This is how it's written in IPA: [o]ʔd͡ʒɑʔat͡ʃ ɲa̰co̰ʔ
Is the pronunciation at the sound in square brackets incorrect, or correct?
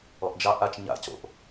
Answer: incorrect